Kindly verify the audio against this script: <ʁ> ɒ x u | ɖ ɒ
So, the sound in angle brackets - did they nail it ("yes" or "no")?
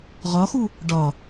yes